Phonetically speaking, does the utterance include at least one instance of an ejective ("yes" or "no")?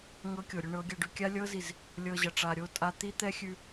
yes